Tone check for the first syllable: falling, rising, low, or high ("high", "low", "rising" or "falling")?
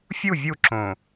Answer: falling